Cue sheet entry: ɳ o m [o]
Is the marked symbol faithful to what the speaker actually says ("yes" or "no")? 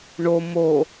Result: yes